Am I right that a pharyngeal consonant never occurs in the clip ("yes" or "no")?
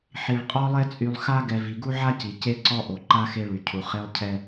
no